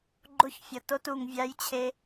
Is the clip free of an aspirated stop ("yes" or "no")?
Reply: no